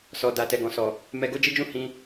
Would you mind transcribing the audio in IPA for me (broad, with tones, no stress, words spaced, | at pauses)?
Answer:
sɔ˨da˨ tɛ˨ɡɔ̃˨sɔ˨ | mɛ˧ɡo˦d͡ʒi˦d͡ʒũ˦ hĩ˧